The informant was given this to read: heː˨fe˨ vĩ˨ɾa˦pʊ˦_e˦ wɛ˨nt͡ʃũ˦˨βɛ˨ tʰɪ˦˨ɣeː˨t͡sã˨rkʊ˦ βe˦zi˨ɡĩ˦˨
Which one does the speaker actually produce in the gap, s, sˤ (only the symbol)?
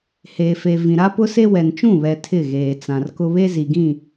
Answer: s